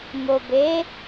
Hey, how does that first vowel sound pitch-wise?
low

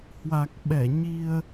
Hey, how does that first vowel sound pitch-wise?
low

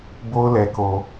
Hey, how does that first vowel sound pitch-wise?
high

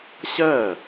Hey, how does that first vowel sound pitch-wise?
falling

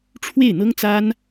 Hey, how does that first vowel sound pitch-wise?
falling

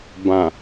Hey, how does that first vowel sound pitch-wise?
low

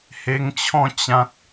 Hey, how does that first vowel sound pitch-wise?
high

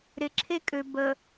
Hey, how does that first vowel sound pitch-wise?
low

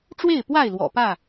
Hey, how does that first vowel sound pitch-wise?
falling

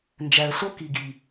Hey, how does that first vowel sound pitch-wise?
low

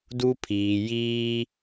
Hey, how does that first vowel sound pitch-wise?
high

